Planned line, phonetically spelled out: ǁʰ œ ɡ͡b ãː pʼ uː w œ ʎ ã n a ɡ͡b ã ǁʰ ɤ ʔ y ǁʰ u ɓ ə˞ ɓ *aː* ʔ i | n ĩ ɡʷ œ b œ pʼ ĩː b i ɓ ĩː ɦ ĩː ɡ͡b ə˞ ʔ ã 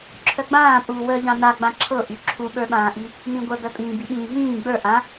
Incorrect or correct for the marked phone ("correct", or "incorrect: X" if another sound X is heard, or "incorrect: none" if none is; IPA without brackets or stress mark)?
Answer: incorrect: ãː